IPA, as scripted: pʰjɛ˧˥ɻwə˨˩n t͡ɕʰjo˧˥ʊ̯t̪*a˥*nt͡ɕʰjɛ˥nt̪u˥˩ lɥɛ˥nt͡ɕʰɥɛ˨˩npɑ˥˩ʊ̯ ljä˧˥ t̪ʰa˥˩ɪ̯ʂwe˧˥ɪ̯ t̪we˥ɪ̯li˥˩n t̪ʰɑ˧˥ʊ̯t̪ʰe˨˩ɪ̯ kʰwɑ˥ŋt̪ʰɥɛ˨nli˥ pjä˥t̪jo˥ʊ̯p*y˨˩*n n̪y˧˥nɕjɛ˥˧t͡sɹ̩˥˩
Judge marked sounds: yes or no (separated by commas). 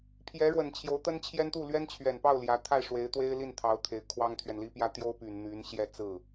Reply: no, yes